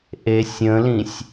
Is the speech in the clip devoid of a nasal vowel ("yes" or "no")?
no